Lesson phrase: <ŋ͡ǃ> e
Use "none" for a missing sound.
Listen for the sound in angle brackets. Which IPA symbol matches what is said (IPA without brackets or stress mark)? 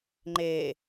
ŋ͡ǃ